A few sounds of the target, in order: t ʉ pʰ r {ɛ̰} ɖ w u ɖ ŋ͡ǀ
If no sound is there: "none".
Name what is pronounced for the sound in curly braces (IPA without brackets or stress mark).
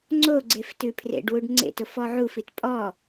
ḛ